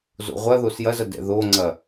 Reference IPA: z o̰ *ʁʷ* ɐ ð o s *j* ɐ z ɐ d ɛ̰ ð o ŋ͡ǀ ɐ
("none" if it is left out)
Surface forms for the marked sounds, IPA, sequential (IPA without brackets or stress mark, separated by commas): ʁʷ, j